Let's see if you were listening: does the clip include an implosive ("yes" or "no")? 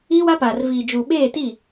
yes